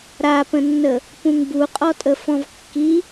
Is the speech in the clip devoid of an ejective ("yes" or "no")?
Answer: no